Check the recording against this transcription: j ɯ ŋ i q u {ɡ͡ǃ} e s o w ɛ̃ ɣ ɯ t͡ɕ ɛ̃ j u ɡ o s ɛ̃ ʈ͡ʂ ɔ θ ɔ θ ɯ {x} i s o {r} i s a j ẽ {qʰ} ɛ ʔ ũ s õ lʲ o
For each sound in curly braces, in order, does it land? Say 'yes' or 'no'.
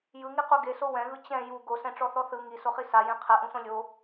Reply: no, no, no, yes

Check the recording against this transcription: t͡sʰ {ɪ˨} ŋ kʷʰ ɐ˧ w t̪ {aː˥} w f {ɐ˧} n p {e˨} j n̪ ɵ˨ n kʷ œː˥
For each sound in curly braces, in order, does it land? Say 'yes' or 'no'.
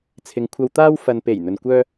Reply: yes, yes, no, no

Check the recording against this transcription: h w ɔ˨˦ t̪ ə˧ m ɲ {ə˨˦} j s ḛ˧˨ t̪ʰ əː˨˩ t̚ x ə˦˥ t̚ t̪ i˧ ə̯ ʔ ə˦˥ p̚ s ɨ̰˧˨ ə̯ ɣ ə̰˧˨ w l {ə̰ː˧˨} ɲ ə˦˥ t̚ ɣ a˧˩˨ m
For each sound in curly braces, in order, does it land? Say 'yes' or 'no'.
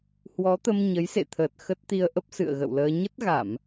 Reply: yes, no

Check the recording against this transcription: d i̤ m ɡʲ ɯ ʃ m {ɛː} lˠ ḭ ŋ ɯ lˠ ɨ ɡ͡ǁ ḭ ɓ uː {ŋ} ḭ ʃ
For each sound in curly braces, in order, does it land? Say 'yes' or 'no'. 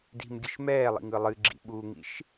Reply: yes, yes

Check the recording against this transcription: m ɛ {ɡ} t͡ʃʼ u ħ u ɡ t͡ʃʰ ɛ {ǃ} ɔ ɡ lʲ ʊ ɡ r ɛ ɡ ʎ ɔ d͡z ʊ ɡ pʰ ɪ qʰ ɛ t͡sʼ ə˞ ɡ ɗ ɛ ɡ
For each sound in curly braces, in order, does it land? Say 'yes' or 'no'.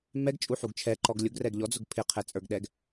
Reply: yes, yes

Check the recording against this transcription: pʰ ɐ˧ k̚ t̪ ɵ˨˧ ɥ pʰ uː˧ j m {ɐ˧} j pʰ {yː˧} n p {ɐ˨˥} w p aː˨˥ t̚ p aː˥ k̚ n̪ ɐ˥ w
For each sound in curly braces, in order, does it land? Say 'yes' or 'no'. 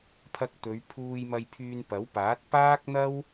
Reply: yes, yes, yes

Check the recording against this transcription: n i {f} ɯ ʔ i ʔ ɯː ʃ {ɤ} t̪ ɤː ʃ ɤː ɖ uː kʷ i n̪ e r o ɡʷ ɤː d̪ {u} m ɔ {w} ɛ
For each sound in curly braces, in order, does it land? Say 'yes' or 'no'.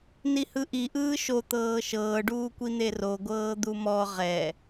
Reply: no, no, yes, no

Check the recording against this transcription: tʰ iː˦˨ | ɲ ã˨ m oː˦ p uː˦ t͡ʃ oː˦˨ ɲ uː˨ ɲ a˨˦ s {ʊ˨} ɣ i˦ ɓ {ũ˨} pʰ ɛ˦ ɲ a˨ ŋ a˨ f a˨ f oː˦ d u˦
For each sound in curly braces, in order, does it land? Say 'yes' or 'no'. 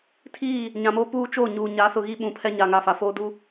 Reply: yes, yes

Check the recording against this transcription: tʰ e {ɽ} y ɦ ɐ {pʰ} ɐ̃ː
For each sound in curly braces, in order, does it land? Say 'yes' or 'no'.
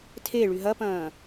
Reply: no, no

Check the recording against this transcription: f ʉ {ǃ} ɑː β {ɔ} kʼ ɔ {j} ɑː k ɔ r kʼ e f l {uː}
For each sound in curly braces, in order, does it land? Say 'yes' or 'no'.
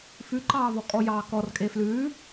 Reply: yes, yes, yes, no

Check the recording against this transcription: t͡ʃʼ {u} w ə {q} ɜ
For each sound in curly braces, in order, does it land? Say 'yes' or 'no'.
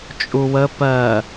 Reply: yes, no

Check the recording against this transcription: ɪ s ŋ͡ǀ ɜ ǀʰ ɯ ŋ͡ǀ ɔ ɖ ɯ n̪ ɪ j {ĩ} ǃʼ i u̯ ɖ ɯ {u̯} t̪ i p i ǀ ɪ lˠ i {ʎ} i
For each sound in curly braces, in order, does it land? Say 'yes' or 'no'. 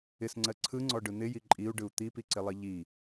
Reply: no, yes, yes

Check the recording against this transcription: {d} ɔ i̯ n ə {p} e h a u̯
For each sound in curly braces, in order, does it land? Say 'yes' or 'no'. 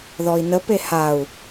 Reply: no, yes

